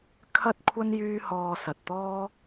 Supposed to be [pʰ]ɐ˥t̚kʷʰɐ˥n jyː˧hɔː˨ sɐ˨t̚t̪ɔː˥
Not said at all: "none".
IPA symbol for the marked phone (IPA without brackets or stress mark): kʰ